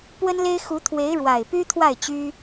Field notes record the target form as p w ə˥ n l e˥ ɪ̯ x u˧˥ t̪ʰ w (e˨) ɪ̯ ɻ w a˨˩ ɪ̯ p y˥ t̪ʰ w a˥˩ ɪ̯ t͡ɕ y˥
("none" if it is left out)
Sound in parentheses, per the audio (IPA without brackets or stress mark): e˧˥